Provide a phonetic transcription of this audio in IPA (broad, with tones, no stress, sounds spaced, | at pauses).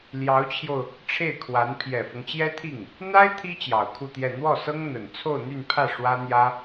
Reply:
l j ɑ˧˥ ʊ̯ t͡ɕʰ j o˧ ʊ̯ | ʈ͡ʂʰ e˥˩ ɪ̯ kʰ w a˧˥ n pʰ j ɛ˨˩ f ɤ˦ ŋ t͡ɕ j ɛ˥ t̪ʰ i˥˩ ŋ | n̪ a˥ ɪ̯ t̪ʰ i˥ t͡ɕ j ɑ˨˩ ʊ̯ kʰ u˥˧ t̪ j ɛ˥˧ n̪ w ɔ˥˩ s ɤ˥ ŋ n̪ ə˨˩ n t͡sʰ o˥˧ ʊ̯ n̪ y˥˧ n pʰ ä˥˩ ʂ w ä˥ n̪ j ä˥